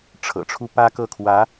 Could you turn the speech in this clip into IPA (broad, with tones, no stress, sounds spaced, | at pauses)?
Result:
ʈ͡ʂʰ ɤ̰˨˩ ʈ͡ʂʰ u˥ p ä˥ k ɤ˥˩ kʰ w ä˧˥